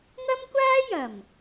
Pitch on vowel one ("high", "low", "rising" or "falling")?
high